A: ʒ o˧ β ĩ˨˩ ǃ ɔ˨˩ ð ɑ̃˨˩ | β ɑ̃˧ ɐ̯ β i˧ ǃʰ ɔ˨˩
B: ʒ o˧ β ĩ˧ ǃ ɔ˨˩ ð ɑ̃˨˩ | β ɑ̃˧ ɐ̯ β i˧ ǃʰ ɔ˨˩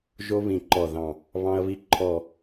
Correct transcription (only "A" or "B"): A